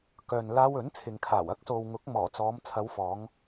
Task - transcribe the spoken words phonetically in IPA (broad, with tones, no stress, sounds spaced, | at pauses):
k œː˨ n l aː˧ w ɵ˨˥ n t͡sʰ ɪ˨ ŋ kʰ aː˨˩ w ɐ˥ k̚ s o˨ w ŋ ʊ˨˥ k̚ m ɔː˨˩ t͡s ɔː˨˧ m t͡sʰ ɐ˨˧ w f ɔː˨˧ ŋ